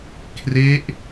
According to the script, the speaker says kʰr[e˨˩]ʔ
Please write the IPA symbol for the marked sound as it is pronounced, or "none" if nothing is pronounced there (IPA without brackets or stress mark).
e˦˥